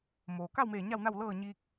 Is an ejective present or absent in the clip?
absent